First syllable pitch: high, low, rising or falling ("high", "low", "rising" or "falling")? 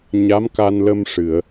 rising